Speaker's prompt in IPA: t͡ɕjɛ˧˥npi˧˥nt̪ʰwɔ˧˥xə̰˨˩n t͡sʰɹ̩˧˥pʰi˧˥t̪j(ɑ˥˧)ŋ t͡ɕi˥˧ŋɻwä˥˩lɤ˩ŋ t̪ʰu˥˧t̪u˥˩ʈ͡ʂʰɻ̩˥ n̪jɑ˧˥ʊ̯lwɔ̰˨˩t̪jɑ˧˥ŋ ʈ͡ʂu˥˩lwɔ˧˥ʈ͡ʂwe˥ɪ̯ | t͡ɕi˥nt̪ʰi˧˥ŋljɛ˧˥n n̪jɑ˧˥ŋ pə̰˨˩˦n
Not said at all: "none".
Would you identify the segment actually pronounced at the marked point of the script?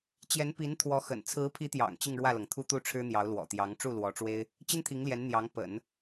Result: ɑ̰˨˩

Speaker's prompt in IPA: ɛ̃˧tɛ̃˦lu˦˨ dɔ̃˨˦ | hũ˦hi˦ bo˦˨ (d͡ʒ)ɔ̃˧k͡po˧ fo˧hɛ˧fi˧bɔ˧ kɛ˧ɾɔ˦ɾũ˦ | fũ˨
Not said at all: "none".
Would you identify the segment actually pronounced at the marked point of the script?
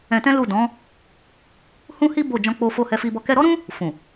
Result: d͡ʒ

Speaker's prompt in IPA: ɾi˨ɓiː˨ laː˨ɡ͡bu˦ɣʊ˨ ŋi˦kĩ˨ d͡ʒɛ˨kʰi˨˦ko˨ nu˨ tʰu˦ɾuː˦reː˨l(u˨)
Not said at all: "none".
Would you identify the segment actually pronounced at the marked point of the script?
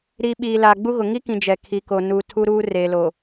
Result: o˨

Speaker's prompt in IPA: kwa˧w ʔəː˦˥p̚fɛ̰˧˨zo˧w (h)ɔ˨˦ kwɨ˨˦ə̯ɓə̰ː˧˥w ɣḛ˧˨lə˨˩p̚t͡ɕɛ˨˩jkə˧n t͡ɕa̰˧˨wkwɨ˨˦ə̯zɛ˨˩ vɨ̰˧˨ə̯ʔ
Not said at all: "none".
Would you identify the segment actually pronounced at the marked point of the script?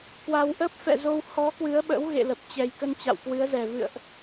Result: h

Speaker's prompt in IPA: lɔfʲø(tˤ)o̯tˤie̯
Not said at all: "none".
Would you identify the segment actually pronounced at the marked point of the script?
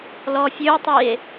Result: none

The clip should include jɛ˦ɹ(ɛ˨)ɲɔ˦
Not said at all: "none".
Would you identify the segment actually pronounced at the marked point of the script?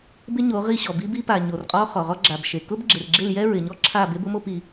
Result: ɪ˨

